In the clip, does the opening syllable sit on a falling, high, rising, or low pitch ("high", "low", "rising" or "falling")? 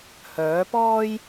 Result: rising